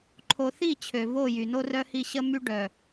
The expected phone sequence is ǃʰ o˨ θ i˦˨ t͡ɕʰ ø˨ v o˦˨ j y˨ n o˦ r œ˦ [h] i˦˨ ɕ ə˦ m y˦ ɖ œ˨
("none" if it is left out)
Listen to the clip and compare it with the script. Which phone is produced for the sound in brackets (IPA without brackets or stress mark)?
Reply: h